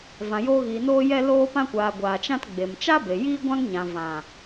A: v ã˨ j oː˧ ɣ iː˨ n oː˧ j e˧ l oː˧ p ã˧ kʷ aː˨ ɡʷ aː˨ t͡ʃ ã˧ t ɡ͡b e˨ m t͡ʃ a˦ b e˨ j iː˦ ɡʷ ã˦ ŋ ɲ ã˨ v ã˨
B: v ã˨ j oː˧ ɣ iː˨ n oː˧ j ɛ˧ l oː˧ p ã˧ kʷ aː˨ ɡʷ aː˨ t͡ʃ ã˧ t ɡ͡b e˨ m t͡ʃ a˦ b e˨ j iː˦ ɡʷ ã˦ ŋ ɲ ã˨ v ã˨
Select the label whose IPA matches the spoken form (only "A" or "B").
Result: B